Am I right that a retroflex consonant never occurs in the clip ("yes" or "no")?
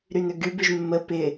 yes